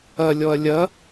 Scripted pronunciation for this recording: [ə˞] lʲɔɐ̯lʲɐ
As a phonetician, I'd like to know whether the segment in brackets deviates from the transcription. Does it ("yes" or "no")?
yes